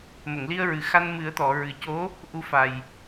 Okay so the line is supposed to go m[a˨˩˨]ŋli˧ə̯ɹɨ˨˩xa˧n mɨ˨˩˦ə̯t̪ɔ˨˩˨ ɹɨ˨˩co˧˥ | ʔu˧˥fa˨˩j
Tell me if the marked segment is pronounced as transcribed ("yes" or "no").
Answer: no